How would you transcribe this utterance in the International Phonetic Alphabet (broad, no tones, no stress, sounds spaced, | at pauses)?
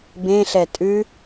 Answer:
b ẽ ɬ ɛ tʼ ʉ